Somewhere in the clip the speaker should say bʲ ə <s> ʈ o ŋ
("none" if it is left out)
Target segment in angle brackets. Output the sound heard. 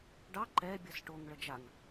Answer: s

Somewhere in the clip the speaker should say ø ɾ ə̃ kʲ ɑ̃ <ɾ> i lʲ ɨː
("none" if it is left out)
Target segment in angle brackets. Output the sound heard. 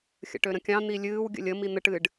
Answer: n̪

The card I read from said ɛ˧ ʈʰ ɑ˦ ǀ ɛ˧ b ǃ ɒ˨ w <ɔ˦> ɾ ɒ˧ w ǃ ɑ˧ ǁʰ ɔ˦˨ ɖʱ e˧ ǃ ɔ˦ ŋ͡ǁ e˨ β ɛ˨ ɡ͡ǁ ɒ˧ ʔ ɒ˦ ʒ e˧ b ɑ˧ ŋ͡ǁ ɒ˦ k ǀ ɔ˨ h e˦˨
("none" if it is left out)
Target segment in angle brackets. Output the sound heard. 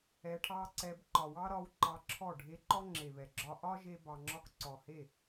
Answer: ɑ˦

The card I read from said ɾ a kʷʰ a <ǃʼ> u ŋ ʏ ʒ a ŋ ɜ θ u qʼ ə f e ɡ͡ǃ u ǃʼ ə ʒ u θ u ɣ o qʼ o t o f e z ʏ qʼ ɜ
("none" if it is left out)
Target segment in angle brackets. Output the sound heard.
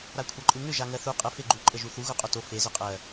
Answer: ǃʼ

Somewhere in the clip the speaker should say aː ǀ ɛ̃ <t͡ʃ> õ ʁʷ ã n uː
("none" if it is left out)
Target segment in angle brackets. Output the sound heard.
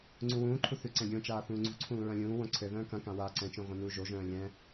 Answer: t͡ʃ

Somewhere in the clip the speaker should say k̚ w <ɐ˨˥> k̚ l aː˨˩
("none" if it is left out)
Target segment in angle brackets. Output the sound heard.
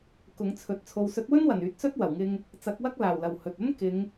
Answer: ɐ˥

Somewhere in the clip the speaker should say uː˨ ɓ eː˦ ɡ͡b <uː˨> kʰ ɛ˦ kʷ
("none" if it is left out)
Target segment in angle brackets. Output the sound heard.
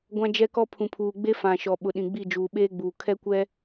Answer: uː˨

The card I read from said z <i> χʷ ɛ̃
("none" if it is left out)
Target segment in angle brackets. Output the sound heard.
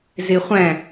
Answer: i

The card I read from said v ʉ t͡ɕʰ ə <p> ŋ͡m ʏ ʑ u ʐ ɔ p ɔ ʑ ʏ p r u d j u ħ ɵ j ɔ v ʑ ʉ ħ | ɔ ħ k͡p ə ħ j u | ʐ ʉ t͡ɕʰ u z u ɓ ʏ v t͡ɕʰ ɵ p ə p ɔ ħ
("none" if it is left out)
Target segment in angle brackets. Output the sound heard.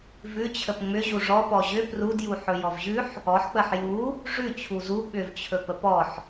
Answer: p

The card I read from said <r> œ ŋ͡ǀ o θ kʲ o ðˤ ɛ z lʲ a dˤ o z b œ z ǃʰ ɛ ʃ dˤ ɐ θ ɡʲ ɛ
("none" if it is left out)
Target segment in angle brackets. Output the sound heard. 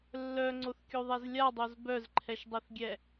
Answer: lː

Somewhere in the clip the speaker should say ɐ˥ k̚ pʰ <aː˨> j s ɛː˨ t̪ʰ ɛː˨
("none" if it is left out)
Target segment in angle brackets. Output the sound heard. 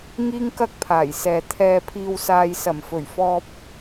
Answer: aː˨˩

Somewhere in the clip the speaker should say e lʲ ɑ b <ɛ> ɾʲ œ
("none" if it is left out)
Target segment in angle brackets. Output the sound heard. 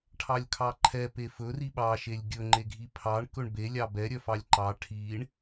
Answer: ɛ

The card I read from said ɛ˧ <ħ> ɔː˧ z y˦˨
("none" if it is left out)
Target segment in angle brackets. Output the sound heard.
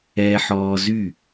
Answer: ħ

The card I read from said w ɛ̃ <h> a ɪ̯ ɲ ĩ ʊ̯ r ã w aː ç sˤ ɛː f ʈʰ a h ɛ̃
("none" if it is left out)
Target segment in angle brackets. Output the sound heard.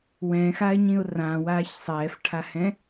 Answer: x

